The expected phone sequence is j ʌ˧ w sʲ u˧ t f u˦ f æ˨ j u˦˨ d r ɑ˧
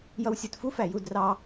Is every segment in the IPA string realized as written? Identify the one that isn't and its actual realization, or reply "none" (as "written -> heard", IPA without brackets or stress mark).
none